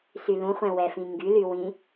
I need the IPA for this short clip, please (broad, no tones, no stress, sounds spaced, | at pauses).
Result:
s y l ũ χʷ ɛ̃ w ɛ f ĩ ŋ ɡ y l y w ĩ